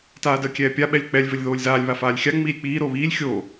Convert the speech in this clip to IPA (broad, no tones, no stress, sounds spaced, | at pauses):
t aː d əː kʲ ɛː pʲ a ɓ ɛ lʲ k͡p ɛ lʲ v ɘ lʲ ð oː lʲ z aː lʲ β a f aː lʲ xʲ a ŋ͡m iː lʲ k͡p iː ɾ oː β iː lʲ xʲ oː